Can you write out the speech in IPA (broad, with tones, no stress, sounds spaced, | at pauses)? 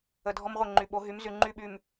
ə˨ dʱ ɔ˦ m ʁʷ ə˦˨ ŋ͡ǃ y˨ ɓ o˨˦ ɦ y˨˦ m z y˨ ŋ͡ǃ y˦˨ ɓ y˨ m